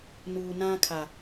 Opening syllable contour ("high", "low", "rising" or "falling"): low